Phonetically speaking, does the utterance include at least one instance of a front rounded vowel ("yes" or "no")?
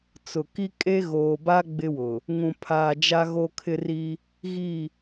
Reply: no